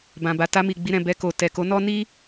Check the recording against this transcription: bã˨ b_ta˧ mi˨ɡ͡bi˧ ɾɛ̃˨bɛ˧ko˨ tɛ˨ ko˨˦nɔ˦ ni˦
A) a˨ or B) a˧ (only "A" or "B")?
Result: A